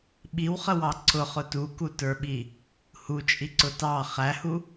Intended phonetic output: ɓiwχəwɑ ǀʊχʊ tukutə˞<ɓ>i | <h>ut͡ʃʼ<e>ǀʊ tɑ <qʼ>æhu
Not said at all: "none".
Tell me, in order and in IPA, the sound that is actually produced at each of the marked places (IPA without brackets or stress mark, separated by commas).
ɓ, h, i, χ